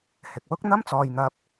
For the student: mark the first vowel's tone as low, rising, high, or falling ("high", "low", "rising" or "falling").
low